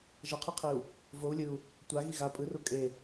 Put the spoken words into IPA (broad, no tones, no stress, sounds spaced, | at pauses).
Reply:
ʒ ʌ qʰ ɯ qʰ i u̯ | v o u̯ lʲ ɯ u̯ | tʷ a ɣ i ɣ a pʼ ɯ r u kʼ e